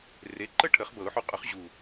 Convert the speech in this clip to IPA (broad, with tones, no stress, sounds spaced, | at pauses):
r e˨˥ ǃ ə˥˨ ʈʰ ə˨˩˦ χ b ɤ˨˩˦ ʊ̯ ħ u˨˥ qʼ ʊ˨˥ χ ʑ u˨˩